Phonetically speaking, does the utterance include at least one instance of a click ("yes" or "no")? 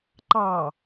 yes